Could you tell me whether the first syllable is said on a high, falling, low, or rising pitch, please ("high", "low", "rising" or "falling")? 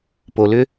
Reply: low